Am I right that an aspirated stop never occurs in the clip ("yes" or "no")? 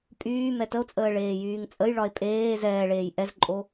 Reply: yes